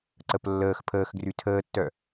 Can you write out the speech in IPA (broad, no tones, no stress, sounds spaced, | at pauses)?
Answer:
ǀ ə p lː əː x pʰ əː x ɡ r y tʰ əː tː œ